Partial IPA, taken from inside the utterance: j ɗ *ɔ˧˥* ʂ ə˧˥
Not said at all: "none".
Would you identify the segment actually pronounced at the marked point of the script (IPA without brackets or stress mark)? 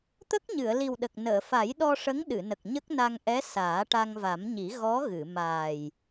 ɔ˧